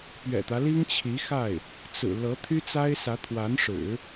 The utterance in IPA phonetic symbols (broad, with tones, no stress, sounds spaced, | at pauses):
p ɥ ɛ̰˨˩ t̪ ä˦ l i˥ ŋ t͡ɕʰ i˧˥ x a˥˩ ɪ̯ | t͡s ɹ̩˨˩ l ɤ˧˥ t̪ʰ y˥ t͡s a˥ ɪ̯ s ä˧˥ t̪ʰ w a˧˥ n ʂ ɻ̩˨˩˦